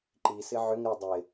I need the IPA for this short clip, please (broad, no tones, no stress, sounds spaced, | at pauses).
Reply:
ǃ i s ɪ ʕ ʏ ŋ ɾ ɪ dˤ ɪ